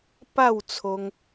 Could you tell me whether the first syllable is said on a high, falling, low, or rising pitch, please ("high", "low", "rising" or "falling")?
falling